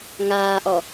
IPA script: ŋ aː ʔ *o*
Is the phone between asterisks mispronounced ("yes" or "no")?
yes